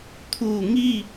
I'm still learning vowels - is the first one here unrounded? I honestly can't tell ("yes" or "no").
no